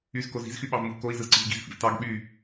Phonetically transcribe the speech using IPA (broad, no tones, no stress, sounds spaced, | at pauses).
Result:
y z k o z i̤ z x y ɓ ɑ v m u v k o i̯ z ɯ z ǀ i̤ v ɡ i̤ z f ḭ v t ɑ ɡ ɓ y